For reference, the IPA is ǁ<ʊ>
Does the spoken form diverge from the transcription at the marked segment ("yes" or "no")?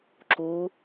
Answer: yes